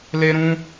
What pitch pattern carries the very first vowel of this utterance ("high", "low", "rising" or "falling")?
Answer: high